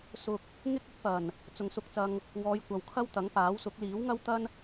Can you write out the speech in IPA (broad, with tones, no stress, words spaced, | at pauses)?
sʊ˧k̚ | ŋɪ˥k̚ɪ˨˥k̚pɐ˨˩n | t͡sʊ˨ŋsʊ˧k̚t͡sɐ˧ŋ | wɔː˨˧j kʷɐ˨wkʰɐ˥wt̪ɐ˨˥ŋpaː˨˥w sʊ˨˥k̚ liː˨˥wŋɐ˥wt̪ɐ˥n